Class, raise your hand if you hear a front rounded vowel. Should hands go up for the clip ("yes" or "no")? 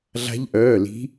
yes